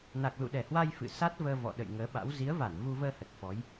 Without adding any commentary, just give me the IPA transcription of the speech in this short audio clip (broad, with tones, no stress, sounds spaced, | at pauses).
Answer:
n a˨˩ k̚ l ṵ˧˨ ɗ ɛ˧˩ h w a˧ j f ɨ̰˧˨ s a˦˥ t̚ v əː˧ v ɔ̰˧˨ ɗ ə̰˧˨ j ŋ əː˨˦ ɓ a̰˧˥ w z i˨˦ ə̯ v a˧˩ n v u˧ v əː˧ h ə˨˩ t̚ f ɔ˨˦ j